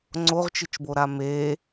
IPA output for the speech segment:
ŋ͡ǀ o ʁ t͡ʃ ɨ t͡ʃ b o ɾ a m e

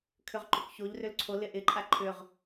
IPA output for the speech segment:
kʰ ʏ ʁ ǃ ʏ k ç o ʎ r ʏ l ǀʰ o l ɪ ʔ ɪ ǃʼ a ǃʰ ʏ ʁ

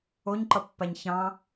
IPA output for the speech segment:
o ɲ ǃ ʌ pː a ɲ ç ɑ̃

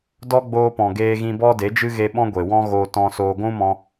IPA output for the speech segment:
d ɔ˦ ɡ͡b oː˧ p ɔ̃˨ ɡ eː˧ ɣ ĩ˧ b ɔ˦ d e˨˦ d͡ʒ ɨ˦ ɣ e˧ ɓ ɔ̃˦ ɡʷ e˨ w ɔ̃˦ ɣ oː˧ t ɔ̃˨ s oː˨ ɡʷ ũ˦ m ɔ̃˧

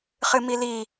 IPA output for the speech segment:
χ ɨ m i l i

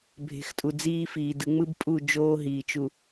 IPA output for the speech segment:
bʱ e̤˨ x tʼ u˨ d͡z iː˦ f iː˨ d ɯ˨ ŋ͡m ɯ˦ b pʼ u˦˨ d͡ʒ oː˦ ɦ iː˨ t͡ʃ u˨

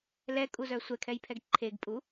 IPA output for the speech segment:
l ɛ kʼ u z œ sʷ ɛ kʰ ɛ j pʰ ɛ ɡ ǃʰ e ɡ pʼ u

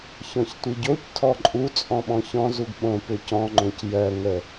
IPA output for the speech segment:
ç ɔ̃ ç tʷ i ɟ o c tʰ ɔ ǃʼ u t͡sʼ ɔ̃ ɓ ɔ̃ ç ɔ̃ z u ɡ ɓ õ p ʏ c ɔ̃ ŋ͡ǃ õ c j ɜ ŋ ə

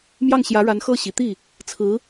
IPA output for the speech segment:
m j ɑ˥˩ ŋ ɕ j ä˧˥ ɻ a˧˥ n x ɤ˥˩ ɕ i˨˩ t̪ i˥˩ | t͡sʰ ɹ̩˧˥

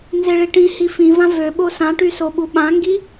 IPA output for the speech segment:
n z e ɭ i ʈ ĩ h i f ĩ v ã v ø ɓ o s ã ʈ y s o ɓ u ɓ ã ŋ ɡ i

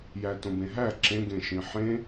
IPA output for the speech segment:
j æ t õ b ẽ ɦ æ ǁ ẽ ɡ ẽ ʃ ĩ ħ ẽ

